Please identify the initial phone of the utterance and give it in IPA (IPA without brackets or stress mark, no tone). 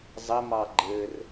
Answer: zˤ